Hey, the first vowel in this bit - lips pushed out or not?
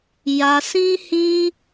no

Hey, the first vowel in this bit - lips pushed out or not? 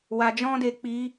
no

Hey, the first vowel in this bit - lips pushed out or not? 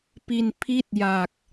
no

